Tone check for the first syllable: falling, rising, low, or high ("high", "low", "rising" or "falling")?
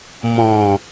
low